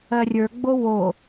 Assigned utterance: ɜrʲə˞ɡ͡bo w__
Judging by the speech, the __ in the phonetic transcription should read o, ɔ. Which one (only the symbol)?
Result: o